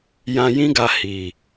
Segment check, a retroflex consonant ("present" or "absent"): absent